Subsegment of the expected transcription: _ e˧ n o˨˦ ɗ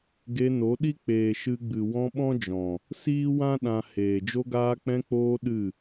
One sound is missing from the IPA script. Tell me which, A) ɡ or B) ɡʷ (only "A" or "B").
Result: A